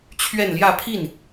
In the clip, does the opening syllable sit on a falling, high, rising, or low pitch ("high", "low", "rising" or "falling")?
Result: falling